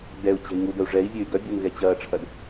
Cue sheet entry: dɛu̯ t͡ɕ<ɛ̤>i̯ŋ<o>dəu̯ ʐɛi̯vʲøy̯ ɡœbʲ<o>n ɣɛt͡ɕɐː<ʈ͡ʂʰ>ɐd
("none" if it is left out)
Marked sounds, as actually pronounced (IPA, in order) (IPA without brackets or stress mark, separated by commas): ɛ̤, u, o, ʈ͡ʂʰ